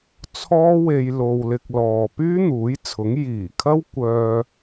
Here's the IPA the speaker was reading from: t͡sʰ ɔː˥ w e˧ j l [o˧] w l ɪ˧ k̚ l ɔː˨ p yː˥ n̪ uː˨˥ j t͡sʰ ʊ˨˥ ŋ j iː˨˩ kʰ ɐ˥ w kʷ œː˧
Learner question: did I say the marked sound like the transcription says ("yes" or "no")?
yes